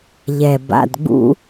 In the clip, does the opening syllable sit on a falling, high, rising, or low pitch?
low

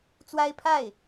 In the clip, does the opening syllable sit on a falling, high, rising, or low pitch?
high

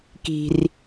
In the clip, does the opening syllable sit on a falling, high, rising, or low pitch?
high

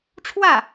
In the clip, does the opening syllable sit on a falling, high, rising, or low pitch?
falling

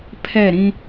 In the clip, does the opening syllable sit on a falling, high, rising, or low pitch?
falling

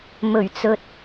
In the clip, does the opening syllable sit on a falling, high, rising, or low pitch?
low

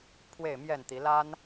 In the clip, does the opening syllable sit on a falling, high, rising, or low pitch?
falling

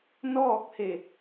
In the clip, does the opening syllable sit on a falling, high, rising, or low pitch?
falling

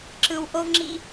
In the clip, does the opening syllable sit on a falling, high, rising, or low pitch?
low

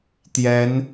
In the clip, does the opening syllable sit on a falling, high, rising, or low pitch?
rising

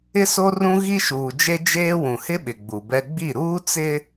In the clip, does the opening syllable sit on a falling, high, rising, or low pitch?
high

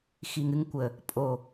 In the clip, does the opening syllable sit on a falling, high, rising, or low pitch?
low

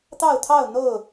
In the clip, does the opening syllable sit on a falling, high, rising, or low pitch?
falling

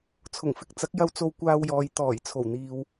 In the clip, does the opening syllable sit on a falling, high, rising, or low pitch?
low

